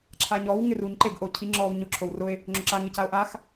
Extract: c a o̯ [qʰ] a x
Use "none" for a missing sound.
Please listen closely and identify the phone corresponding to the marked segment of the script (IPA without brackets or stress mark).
ʔ